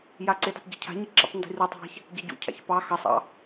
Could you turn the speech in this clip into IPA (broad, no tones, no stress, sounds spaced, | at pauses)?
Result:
j a ǀ ɪ d a tˤ ɟ ɪ cʰ a̤ ɲ i ǁ ḭ tˤ n d i̤ r u tˤ a̤ ç | ɟ a ɟ ṵ cʰ a̰ ç p ɑ x ɑ sˤ ɑ̰